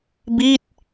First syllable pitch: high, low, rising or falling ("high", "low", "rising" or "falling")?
falling